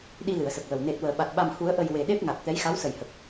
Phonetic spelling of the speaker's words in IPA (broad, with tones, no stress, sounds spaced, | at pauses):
ɗ i˧ l ɨ˨˩˨ ə̯ s ə˨˩ k̚ w ə˨˩ w n e˨˩ t̚ w əː˨˩˨ ɓ a˨˩ t̚ ɓ a˨˩ m h u˨˩˦ ə̯ ʔ ə˨˩ j w e˨˩ ɗ e˦˥ p̚ ŋ a˨˩ t̚ t̪ ɛ˧˥ j x a˧˥ w s ə˨˩ j h ə˨˩ k̚